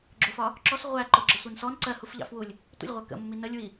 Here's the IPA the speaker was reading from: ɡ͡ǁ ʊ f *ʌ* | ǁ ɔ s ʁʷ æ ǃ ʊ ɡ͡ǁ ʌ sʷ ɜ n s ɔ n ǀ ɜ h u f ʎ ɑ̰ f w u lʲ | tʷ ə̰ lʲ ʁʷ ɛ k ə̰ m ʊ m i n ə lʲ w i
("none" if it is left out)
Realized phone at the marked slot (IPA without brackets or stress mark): ɒ